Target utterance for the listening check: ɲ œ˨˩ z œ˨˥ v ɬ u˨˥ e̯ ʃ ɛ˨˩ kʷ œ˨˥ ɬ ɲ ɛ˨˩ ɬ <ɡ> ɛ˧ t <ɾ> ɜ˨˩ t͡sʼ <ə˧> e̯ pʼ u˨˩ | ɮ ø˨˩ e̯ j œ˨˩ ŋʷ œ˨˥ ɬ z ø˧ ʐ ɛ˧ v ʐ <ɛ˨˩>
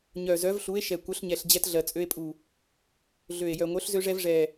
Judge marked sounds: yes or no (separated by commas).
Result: no, no, no, yes